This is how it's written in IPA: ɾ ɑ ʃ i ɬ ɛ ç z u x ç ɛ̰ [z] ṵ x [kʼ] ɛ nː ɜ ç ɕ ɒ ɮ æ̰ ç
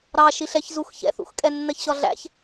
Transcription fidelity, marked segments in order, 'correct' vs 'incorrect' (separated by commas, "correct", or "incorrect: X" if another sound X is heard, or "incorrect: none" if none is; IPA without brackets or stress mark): incorrect: θ, correct